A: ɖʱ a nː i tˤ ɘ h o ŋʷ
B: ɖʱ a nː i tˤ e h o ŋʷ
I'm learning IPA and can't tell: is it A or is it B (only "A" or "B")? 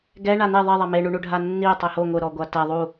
B